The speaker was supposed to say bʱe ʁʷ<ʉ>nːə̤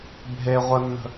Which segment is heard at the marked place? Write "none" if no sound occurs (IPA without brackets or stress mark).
ə